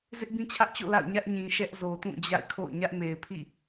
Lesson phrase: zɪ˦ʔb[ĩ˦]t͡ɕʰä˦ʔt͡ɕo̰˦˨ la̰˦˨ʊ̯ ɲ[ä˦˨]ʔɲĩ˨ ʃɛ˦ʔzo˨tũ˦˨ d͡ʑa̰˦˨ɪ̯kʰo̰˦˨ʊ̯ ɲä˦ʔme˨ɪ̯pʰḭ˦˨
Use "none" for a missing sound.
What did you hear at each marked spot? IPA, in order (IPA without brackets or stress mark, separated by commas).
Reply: ĩ˦, ä˦